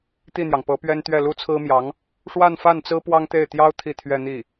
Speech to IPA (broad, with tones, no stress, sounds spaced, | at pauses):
t̪ i˥˩ n̪ j ɑ˩ ŋ p ɤ˧˥ p ɥ ɛ˥ n t̪ ɥ ɛ˥˩ l u˥ t͡sʰ ɹ̩˥ m j ɑ˧˥ ŋ | ʂ w a˥˧ n f a˥˩ n t͡s ɹ̩˥ p w ɑ˥ ŋ t̪ e˥˩ ɪ̯ t̪ j ɑ˥ ʊ̯ t̪ʰ i˥˧ t̪ʰ ɥ ɛ˥˧ n̪ i˥˩